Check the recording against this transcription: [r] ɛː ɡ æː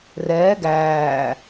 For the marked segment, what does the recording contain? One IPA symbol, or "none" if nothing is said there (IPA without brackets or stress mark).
r